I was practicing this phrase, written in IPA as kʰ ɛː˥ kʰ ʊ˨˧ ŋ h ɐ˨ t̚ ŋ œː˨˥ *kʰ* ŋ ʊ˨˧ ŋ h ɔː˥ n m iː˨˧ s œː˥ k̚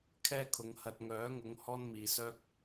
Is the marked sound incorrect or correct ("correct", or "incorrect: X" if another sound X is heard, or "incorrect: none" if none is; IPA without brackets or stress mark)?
incorrect: none